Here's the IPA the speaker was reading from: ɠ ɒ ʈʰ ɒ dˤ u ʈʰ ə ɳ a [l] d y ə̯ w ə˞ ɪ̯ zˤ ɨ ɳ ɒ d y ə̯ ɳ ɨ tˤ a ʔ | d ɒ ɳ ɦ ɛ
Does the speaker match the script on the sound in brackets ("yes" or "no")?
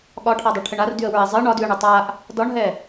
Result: no